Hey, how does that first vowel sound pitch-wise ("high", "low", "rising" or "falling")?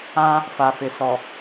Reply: high